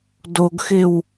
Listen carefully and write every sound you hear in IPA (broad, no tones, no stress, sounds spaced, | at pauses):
d o ɡ x ɪ w